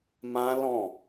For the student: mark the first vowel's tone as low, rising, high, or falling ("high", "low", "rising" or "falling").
high